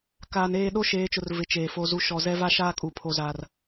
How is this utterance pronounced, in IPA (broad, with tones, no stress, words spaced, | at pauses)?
kaː˨neː˦˨ ɗo˦ʃeː˨˦t͡ʃʊ˨r vɪ˨˦t͡ʃeː˨ fo˨zu˨ ʃɔ˨ zɛ˦va˦ʃaː˦kʼu˨ pʰo˨zaː˨r